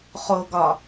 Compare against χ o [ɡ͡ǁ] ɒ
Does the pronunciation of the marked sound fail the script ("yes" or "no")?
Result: yes